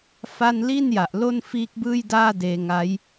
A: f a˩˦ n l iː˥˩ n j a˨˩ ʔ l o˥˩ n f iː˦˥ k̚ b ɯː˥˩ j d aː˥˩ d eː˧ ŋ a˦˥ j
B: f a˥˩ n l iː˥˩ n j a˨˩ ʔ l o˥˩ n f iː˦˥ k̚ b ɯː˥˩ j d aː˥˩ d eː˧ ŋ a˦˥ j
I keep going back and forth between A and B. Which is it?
B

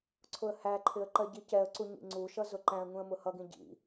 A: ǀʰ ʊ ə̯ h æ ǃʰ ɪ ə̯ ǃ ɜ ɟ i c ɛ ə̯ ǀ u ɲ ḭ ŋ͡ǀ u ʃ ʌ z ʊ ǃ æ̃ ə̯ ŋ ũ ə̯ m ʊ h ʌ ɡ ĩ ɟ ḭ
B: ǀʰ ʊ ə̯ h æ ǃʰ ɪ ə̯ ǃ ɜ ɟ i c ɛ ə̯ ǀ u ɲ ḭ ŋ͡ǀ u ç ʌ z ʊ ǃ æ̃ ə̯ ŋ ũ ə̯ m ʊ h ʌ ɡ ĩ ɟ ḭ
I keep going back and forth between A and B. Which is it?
A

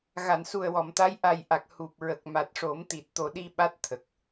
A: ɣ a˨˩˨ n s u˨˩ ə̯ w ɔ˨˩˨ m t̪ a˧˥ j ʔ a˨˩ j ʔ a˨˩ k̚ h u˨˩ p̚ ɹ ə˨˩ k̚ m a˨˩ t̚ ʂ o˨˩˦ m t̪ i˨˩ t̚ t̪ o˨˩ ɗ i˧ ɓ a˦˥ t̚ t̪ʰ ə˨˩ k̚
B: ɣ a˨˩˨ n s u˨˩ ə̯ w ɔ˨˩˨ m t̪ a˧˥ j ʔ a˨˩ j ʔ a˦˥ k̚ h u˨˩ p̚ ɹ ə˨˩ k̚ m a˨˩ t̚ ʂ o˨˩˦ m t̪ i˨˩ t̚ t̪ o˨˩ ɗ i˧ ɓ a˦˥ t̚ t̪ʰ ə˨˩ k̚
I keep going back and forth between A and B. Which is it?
A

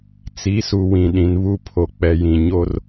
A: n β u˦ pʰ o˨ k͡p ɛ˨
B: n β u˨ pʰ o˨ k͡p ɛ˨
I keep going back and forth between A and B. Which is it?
A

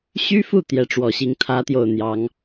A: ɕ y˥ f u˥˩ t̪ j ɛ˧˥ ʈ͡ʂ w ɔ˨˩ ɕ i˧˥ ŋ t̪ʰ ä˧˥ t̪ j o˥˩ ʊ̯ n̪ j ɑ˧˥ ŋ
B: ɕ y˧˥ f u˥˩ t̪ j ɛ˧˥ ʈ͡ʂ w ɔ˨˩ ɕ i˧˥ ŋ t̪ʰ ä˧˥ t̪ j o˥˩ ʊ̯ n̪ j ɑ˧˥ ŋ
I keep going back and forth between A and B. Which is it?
A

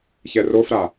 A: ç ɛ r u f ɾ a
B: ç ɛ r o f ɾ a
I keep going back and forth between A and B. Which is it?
B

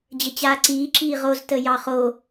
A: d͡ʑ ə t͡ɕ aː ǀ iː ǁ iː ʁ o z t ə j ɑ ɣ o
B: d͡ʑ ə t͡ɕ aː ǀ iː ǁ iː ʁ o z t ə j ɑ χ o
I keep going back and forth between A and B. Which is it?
B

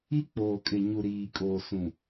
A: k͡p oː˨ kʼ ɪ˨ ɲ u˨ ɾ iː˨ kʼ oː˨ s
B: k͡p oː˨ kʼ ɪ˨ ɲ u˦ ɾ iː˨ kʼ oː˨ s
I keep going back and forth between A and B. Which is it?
A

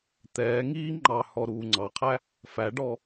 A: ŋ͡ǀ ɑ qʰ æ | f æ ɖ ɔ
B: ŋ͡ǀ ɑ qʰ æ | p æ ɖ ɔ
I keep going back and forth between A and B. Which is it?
A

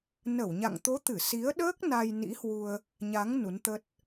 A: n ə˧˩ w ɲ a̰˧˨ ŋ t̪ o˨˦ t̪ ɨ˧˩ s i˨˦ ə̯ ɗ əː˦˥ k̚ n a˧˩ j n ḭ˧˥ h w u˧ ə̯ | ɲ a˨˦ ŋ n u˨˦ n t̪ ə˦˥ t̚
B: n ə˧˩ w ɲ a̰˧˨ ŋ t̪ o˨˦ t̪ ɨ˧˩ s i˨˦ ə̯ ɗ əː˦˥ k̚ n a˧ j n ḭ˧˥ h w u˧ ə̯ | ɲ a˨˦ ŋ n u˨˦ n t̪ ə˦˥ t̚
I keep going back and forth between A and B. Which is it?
B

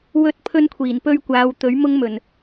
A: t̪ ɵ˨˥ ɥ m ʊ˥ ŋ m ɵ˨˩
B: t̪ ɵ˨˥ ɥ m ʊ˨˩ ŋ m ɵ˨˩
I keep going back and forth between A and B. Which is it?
A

